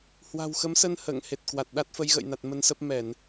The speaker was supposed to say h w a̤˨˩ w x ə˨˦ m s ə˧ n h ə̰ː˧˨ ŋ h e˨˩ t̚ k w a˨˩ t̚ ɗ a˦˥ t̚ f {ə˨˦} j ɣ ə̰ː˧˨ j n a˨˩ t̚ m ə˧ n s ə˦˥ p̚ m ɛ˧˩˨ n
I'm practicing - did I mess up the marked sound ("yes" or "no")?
no